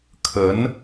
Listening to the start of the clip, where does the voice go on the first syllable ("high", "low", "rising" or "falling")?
rising